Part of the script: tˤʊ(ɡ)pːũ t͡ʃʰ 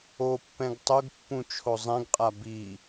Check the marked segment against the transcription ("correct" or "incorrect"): correct